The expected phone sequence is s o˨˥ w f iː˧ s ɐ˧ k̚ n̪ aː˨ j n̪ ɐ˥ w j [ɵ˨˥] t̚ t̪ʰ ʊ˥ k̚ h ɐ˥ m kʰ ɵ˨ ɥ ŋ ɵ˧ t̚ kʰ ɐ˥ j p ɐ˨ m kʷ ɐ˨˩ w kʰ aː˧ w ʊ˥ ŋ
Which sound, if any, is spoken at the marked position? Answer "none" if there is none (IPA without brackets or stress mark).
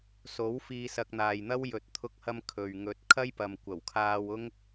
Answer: ɵ˨˥